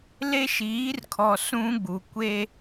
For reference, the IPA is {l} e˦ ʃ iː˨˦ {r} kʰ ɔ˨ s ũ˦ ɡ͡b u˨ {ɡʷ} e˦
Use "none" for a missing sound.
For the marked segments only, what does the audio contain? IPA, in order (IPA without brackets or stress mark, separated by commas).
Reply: l, r, kʷ